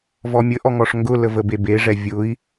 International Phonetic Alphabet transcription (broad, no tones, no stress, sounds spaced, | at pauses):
v ɔ mʲ ə ʔ ɔ ŋ ɔ ʂ ŋ ɡ ʊ l ə v ə b e b e ʐ ɛ vʲ ʊ i̯